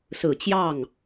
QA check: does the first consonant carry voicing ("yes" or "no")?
no